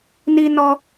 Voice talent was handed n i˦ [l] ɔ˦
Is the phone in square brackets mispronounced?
yes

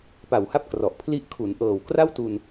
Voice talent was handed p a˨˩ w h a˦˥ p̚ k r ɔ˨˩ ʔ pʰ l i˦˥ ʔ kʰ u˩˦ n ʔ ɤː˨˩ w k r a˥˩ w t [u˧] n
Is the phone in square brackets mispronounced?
no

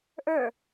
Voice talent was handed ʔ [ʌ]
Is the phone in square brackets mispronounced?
yes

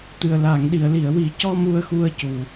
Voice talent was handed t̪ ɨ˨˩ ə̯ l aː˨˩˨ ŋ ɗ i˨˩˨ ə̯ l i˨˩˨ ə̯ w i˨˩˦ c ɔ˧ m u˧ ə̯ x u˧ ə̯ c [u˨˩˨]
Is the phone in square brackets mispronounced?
yes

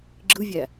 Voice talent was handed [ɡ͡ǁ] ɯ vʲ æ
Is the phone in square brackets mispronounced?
no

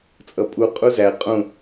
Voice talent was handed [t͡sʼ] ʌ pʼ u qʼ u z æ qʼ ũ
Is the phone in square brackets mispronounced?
no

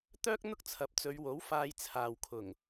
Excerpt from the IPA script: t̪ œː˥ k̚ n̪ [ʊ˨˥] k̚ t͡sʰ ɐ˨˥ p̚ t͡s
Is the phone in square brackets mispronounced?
yes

